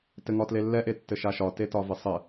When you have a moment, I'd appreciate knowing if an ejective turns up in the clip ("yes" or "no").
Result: no